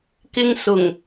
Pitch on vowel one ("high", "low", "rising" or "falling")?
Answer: high